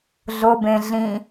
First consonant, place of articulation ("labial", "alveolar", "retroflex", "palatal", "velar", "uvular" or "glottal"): alveolar